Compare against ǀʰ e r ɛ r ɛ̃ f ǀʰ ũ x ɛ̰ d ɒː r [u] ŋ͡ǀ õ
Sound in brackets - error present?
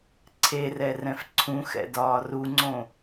no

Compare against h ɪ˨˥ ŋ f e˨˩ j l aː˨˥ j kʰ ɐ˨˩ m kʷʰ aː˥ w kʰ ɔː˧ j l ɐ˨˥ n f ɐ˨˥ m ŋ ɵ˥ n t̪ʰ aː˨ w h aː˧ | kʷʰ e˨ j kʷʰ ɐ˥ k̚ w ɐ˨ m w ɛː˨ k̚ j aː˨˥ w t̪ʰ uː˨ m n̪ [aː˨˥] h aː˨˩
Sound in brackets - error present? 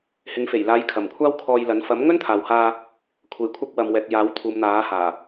no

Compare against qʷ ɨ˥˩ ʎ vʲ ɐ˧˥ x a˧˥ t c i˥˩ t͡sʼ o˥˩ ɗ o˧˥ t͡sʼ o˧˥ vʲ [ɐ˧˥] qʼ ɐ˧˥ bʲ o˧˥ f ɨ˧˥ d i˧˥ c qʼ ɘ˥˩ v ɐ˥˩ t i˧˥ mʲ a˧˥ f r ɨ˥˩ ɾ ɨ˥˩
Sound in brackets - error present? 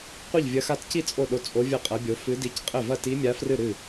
yes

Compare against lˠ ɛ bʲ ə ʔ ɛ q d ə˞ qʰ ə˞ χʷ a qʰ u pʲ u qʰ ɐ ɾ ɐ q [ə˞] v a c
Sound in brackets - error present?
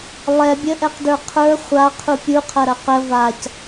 yes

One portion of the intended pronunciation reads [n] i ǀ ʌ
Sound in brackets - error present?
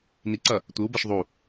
no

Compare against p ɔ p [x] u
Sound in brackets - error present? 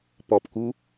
yes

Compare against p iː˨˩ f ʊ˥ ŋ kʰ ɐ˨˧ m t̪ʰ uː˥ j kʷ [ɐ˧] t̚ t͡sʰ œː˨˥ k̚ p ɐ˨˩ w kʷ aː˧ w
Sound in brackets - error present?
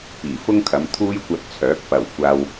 no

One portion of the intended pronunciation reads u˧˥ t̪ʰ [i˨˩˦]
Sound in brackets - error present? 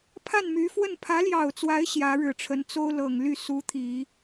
no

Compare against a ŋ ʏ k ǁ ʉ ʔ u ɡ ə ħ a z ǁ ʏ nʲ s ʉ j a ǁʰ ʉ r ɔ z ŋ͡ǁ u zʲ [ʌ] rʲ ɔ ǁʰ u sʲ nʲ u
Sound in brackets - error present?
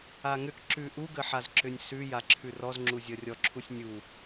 no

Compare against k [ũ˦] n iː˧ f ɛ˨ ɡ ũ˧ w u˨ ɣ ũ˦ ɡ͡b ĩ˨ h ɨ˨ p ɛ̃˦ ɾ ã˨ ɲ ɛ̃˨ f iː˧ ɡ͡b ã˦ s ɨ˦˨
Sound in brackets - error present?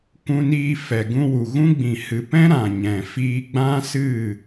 yes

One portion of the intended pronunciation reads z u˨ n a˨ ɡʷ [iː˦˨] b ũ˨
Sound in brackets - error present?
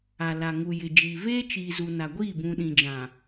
no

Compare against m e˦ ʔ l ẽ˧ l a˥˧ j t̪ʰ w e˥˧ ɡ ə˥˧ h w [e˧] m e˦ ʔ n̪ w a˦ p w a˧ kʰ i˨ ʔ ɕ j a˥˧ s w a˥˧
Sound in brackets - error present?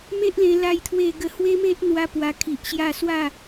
yes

